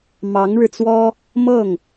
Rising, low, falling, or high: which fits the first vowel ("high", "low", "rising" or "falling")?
rising